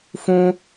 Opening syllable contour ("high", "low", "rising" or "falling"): high